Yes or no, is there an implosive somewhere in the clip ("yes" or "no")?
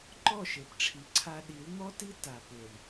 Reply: yes